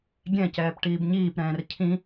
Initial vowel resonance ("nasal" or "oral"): nasal